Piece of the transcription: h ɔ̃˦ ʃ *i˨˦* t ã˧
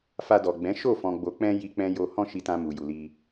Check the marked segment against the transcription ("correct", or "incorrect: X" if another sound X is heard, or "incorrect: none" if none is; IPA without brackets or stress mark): incorrect: i˧